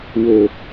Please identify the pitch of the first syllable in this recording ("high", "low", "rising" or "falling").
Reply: low